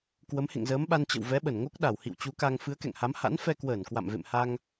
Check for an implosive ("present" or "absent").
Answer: present